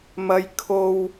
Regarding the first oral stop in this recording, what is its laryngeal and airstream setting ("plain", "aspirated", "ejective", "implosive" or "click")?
aspirated